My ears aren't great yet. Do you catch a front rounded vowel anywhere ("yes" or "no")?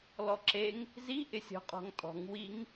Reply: no